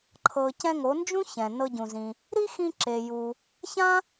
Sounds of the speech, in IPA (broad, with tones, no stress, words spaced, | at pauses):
ǃʰɤ˩ cɛ̃˧ŋo˩˧nd͡ʒũ˥ çɛ̃˩nɤ˧ɟũ˩zĩ˩ | ɾi˥xĩ˧ ǁe˩ju˩ | çã˥